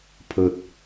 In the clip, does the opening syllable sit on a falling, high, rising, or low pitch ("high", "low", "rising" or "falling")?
low